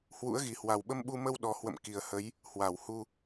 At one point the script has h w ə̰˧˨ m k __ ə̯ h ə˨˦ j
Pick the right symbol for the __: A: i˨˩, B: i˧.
A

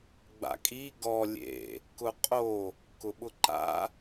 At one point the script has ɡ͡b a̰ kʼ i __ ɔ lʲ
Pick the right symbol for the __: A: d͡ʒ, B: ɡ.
B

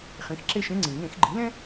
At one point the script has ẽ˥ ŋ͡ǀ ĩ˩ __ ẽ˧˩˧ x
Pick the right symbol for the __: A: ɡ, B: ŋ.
B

